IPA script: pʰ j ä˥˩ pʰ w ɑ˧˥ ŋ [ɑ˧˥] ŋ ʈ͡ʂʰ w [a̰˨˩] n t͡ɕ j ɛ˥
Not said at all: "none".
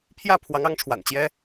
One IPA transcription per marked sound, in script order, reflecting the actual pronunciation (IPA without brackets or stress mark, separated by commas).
ɑ˧˥, a̰˨˩